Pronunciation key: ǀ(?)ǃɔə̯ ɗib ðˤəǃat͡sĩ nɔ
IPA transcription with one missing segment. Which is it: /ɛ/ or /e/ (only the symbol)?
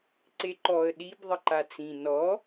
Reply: e